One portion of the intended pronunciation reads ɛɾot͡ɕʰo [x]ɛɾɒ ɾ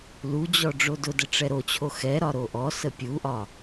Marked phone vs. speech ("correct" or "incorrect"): correct